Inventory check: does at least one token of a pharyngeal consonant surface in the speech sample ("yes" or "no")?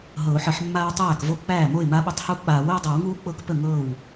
yes